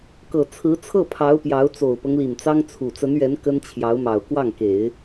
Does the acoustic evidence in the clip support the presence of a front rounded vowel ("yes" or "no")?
no